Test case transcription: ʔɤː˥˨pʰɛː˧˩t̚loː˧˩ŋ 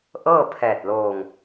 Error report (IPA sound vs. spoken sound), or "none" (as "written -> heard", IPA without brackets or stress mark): none